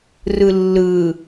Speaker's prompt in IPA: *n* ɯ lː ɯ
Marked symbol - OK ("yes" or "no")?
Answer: no